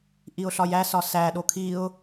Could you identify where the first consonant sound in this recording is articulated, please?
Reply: glottal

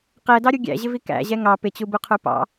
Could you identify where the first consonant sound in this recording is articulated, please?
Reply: uvular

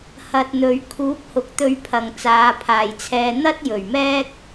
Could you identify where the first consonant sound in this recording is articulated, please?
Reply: glottal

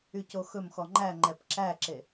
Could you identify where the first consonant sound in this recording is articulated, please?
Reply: palatal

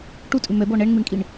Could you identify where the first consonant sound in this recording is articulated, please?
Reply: retroflex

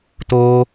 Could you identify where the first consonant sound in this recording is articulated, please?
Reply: alveolar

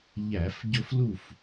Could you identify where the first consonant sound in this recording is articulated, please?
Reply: palatal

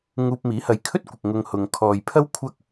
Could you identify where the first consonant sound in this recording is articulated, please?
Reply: velar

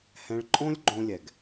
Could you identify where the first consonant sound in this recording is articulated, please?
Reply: glottal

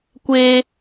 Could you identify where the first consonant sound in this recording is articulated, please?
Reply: velar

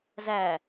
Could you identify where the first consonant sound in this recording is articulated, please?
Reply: alveolar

